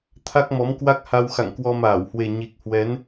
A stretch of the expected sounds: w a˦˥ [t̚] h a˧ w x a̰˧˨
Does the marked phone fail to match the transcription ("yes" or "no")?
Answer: yes